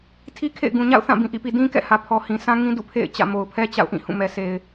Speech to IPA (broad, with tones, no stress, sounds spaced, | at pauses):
tʰ i˦ kʰ ḛ˦˨ ɪ̯ ɡ ũ˨ ɲ a̰˦˨ ʊ̯ θ ã˦˨ b ĩ˨ ʔ ḭ˦˨ p i˨ d ĩ˦ k ɛ̰˦˨ h ä˨ pʰ ɔ˨ h ĩ˨ sʰ ã˦ ŋ ĩ˦ d ṵ˦˨ pʰ ḛ˦˨ ɪ̯ t͡ɕ ä̰˦˨ m o˨ ʊ̯ pʰ ɛ˦ t͡ɕ a̰˦˨ ʊ̯ ʔ ĩ˦˨ h ũ˦˨ m ɛ˨ s e˨ ɪ̯